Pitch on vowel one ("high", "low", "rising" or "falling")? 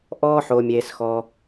high